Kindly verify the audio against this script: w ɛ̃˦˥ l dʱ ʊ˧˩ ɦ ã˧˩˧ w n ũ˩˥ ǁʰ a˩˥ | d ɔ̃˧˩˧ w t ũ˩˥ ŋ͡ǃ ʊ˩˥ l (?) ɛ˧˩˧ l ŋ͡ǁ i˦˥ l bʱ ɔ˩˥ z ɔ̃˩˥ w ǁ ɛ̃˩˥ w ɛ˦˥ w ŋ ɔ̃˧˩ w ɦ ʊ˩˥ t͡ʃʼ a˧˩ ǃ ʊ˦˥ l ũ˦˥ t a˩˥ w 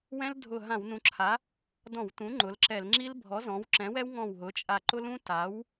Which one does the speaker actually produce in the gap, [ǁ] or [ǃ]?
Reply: ǁ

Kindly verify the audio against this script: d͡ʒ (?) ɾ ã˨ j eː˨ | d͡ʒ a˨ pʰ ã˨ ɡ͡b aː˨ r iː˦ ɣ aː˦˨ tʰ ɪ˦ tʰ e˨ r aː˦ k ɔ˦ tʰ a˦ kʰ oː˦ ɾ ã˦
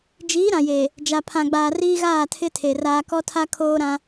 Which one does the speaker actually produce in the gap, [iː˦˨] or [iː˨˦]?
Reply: iː˨˦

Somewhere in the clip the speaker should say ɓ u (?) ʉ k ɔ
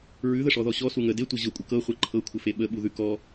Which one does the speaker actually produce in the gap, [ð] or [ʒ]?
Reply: ð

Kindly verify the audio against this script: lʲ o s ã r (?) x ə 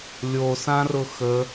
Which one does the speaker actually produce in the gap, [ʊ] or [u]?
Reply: ʊ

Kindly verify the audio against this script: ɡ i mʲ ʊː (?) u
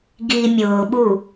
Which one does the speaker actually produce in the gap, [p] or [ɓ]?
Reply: ɓ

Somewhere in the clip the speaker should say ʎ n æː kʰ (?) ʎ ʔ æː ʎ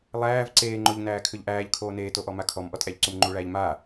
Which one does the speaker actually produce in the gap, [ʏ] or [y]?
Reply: ʏ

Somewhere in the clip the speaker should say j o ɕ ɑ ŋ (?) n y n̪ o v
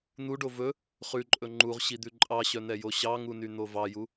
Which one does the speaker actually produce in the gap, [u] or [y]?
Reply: u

